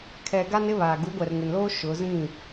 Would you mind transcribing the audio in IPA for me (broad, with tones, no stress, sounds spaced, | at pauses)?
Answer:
kʰ ɛ˨ ɡ a˦ n ɪ˦ β a˨ ɡ u˨˦ ɡʷ ɛ˨ r ŋ ɪ˨ n l oː˦ ʃ ʊ˨˦ z ĩ˦˨